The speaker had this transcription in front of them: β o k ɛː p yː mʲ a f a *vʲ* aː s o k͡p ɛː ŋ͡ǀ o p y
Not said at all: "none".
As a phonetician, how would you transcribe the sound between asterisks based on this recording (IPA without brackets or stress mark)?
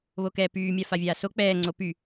vʲ